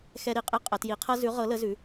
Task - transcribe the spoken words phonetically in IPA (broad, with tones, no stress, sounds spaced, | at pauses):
x ɛ˥ ɾ i˧˥ qʼ i˥ qʼ ə˧˥ t j i˧˥ qʰ ɤ˥ z ʉ˧˥ ʁ ɤ˧˥ l ə˧˥ z ʉ˧˥